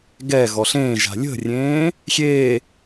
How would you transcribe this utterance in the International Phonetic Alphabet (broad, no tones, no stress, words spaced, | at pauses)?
ɡɛɣɔɬ ẽːʒa̤ lʲə̤rʲẽː | xʲe